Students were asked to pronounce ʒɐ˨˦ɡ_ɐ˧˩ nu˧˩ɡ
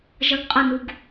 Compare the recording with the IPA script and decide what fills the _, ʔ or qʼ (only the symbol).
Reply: qʼ